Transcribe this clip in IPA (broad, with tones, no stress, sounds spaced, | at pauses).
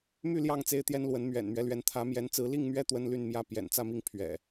m y˥˨ l j ɑ˥˨ ŋ t͡s e˦ ɪ̯ t̪ j ɛ˦ n l w ə˨˦ n m ɥ ɛ̰˨˩ n m ɥ ɛ˨˦ l ɥ ɛ˨˦ n t̪ʰ ä˨˦ m j ɛ˨˦ n t͡s ɹ̩˨˦ l i˥˨ ŋ m ɥ ɛ˦ t̪ w ə˦ n l y˥˨ n m j ä˥˨ p j ɛ̰˨˩ n t͡s ä˥˨ m i˥˨ ŋ pʰ ɥ ɛ̰˨˩